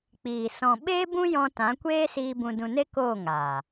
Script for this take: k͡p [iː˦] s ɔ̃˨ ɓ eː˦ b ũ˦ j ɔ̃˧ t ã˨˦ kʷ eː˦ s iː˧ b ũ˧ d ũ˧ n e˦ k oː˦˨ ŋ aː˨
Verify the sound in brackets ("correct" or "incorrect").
incorrect